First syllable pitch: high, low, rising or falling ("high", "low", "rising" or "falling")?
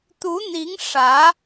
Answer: rising